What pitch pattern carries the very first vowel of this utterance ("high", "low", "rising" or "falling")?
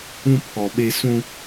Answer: high